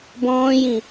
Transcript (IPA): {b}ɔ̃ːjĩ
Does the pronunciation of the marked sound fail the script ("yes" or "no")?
no